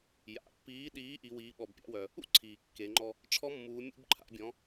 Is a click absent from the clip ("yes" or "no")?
no